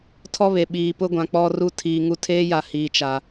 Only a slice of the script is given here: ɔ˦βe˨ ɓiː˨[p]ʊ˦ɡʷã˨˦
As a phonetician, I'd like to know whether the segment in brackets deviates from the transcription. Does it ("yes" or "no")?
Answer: no